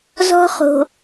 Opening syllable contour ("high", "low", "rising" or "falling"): high